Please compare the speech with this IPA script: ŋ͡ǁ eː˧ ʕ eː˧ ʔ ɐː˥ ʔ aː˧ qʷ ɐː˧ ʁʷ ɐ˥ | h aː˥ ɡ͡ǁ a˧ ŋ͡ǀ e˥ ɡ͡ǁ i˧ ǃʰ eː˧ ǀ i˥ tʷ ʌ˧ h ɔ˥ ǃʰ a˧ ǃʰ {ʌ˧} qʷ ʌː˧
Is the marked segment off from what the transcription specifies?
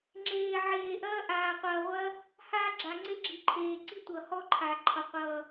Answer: no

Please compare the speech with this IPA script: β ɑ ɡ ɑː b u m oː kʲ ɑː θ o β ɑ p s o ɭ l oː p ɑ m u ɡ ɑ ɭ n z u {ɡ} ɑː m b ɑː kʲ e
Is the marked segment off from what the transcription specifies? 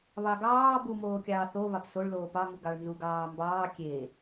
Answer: no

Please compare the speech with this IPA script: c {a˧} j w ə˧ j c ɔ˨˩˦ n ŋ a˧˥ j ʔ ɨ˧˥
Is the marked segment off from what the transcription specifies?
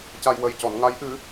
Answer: no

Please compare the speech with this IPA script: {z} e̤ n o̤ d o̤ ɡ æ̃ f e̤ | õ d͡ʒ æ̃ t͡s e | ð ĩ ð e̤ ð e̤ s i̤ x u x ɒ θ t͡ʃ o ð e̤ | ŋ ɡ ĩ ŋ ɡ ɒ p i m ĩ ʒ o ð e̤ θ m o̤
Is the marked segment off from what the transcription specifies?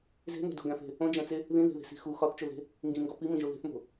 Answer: no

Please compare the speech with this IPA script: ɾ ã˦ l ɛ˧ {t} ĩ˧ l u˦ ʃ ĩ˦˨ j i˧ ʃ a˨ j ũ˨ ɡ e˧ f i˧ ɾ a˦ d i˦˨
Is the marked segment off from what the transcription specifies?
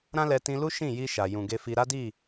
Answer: no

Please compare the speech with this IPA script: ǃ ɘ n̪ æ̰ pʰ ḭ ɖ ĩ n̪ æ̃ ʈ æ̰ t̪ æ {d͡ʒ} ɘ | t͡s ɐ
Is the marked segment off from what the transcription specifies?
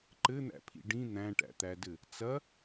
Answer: yes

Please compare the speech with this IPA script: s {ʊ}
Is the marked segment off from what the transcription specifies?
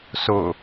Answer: no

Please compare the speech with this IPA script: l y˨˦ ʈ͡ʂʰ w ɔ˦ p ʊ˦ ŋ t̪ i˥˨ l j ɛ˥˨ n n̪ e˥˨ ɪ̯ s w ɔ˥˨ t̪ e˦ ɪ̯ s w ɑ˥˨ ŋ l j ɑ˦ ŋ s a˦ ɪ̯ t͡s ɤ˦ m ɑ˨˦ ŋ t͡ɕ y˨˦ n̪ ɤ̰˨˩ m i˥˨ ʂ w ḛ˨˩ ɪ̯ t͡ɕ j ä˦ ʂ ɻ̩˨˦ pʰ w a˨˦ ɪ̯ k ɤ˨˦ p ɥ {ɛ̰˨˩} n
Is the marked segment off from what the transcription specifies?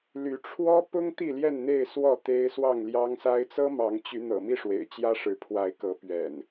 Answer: no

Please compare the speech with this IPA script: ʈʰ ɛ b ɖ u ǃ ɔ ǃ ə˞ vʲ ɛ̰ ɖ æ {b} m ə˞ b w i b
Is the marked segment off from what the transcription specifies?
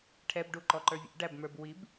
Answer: no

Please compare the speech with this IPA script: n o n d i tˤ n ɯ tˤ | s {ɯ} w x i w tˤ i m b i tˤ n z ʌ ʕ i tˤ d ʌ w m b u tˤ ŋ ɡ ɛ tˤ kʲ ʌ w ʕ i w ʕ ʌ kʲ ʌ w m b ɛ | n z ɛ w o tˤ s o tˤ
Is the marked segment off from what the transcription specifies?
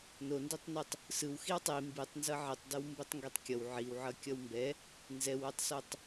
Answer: no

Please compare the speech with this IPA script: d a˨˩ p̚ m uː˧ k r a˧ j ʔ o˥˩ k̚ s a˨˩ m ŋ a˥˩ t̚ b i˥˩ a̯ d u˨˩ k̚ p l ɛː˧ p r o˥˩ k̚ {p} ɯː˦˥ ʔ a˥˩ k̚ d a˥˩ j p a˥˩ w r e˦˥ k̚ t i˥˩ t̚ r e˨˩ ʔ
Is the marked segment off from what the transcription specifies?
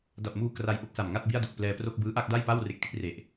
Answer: yes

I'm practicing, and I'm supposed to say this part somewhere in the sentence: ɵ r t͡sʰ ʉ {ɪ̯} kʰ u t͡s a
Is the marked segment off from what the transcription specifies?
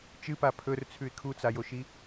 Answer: no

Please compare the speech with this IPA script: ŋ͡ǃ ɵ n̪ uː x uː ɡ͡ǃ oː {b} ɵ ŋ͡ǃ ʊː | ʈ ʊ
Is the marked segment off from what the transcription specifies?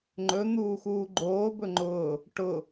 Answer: no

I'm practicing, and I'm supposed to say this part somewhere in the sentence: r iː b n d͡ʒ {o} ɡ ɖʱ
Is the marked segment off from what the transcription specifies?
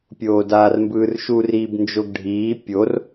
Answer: no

